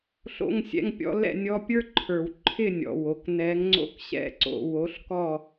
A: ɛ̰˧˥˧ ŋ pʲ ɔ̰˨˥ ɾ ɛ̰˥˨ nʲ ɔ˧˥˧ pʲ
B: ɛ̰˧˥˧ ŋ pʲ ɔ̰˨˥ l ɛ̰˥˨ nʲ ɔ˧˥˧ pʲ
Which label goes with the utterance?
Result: B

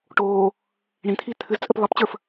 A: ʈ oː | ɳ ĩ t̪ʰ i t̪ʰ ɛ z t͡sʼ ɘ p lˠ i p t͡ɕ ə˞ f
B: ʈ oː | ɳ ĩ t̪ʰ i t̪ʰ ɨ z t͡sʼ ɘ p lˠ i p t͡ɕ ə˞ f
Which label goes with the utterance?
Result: B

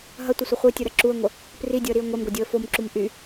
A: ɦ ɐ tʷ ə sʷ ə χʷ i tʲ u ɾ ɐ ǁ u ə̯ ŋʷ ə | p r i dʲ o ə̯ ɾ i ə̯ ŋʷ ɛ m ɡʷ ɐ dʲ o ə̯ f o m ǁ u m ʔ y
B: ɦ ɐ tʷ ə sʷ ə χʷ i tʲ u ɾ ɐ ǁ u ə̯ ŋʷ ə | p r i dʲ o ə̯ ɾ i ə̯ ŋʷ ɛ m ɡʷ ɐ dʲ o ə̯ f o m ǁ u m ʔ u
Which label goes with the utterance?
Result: A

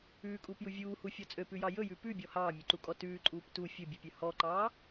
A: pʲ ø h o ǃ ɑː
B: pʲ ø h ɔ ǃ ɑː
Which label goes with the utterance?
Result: B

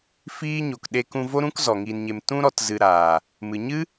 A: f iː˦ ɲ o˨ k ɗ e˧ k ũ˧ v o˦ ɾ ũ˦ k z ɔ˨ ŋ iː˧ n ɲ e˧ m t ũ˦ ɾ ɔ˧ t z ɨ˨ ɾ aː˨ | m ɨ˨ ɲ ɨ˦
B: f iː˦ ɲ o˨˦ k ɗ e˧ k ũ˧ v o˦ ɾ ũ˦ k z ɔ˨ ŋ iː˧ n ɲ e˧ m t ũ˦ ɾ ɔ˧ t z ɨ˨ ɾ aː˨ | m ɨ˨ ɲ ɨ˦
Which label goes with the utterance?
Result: A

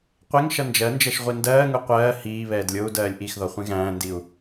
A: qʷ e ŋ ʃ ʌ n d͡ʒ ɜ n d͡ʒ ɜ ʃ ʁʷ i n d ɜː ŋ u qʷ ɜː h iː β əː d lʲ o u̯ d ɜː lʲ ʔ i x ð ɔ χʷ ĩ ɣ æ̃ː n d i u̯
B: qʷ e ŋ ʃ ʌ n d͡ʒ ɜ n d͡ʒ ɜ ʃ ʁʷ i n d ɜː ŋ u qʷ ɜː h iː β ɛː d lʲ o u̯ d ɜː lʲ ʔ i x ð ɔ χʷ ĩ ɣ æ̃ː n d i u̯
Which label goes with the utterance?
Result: B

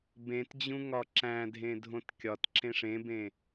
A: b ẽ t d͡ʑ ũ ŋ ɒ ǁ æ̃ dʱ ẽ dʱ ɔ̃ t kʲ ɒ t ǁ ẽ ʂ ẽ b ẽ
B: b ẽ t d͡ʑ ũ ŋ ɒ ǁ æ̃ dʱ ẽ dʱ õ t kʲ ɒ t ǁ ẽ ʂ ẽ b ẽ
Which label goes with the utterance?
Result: B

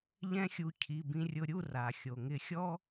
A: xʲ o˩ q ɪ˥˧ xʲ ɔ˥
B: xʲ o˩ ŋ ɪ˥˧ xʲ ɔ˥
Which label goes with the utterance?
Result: B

